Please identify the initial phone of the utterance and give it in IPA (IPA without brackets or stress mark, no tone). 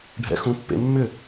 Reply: ɖʱ